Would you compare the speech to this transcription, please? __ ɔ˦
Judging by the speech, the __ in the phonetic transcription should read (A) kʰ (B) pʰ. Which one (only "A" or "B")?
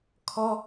A